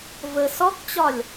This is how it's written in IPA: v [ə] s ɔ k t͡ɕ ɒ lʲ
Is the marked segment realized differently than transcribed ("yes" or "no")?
no